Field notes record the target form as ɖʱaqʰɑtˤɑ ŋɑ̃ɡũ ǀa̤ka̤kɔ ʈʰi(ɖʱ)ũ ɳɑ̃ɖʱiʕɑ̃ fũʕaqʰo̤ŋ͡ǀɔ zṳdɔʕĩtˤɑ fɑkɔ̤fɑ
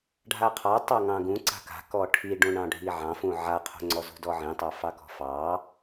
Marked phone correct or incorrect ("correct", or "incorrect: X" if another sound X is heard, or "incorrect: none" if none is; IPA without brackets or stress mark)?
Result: incorrect: ɖ